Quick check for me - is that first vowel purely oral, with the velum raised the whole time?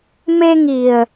yes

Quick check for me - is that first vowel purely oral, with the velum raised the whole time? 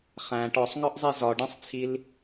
no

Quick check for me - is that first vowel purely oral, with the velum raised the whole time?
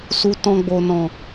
yes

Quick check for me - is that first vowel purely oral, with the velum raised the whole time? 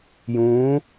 no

